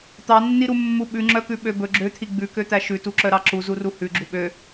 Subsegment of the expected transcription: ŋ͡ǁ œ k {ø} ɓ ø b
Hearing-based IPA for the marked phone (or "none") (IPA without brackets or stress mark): ʉ